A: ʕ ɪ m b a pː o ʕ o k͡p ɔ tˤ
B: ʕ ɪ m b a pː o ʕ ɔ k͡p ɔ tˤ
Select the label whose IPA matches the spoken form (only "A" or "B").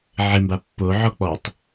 B